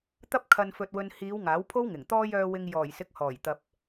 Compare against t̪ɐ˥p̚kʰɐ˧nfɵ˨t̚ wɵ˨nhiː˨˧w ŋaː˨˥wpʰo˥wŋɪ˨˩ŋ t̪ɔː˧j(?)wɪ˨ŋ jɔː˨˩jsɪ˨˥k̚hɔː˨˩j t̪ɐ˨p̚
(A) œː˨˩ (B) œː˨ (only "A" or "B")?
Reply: B